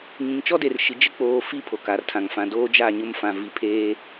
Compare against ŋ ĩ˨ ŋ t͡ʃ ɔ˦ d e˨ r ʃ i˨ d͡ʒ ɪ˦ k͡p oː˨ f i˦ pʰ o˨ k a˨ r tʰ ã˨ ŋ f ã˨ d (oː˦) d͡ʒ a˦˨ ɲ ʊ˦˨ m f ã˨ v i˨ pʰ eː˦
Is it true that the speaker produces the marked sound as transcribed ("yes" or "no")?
yes